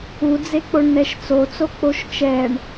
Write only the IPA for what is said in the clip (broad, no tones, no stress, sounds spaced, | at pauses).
u d͡z e k͡p o ɳ n ɛ ʃ t͡s o t͡s o k͡p o ʃ t͡ʃ ɛ ɳ